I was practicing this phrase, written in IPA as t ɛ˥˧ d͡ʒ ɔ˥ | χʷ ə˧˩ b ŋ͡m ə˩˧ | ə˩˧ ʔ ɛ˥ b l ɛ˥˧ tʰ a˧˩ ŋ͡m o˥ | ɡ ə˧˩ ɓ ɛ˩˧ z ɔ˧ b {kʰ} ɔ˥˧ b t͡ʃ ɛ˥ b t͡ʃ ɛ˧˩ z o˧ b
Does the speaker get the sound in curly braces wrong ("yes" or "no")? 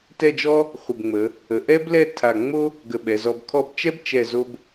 no